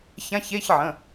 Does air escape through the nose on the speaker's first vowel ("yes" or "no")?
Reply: yes